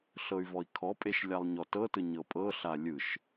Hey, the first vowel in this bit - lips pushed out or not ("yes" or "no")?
no